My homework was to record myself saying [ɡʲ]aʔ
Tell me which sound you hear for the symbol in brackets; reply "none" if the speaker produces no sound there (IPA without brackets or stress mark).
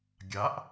ɡʲ